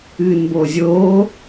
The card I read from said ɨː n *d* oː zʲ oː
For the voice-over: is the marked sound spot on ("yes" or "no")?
no